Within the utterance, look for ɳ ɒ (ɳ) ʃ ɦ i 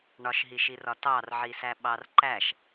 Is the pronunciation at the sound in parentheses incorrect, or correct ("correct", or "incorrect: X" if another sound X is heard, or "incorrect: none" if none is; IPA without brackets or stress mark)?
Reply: incorrect: none